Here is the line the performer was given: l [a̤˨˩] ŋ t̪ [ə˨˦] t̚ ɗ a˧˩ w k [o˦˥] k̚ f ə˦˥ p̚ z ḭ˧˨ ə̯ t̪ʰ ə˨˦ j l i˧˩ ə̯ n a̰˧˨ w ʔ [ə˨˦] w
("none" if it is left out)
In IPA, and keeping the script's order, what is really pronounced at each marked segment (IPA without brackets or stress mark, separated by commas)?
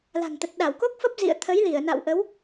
a̤˨˩, ə˨˩, o˦˥, ə˨˦